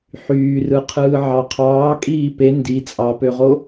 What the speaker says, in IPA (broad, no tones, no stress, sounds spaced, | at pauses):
ħ yː r ɯ qʰ ɯː ʕ ɑ qʰ ɑː kʼ iː p e n d i t͡sʼ ɑ p ø ʁ o